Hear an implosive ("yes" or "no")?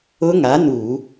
no